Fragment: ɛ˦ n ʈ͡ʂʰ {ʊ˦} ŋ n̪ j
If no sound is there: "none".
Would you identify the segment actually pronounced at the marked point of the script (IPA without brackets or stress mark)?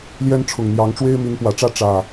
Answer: ʊ˨˩